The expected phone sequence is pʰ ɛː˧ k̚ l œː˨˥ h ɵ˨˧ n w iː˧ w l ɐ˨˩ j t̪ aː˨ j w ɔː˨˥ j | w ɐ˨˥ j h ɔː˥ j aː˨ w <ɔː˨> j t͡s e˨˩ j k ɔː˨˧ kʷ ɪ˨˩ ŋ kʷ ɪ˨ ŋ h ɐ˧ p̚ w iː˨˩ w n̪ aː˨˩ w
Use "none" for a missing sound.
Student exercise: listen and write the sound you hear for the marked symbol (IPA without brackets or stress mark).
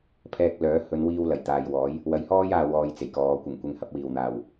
ɔː˧